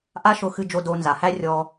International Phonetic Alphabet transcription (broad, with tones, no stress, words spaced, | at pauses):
ʔa˥ʃʊ˧xɨ˧d͡ʒo˧ do˧ nza˩ hæ˥ rʲɔ˧